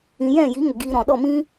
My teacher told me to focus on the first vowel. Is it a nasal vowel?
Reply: yes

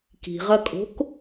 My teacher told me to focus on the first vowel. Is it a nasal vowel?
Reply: no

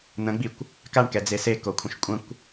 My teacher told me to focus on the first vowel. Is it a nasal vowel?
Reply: yes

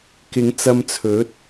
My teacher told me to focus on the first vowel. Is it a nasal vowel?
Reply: no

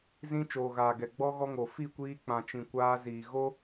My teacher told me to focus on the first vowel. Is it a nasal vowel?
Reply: yes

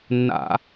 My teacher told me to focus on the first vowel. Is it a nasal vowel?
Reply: no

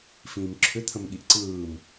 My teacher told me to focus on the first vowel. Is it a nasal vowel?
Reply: yes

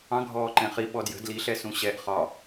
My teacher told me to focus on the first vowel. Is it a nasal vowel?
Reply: yes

